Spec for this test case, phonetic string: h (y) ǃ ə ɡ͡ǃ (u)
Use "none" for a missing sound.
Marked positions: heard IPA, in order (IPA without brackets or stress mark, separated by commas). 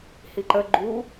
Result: i, u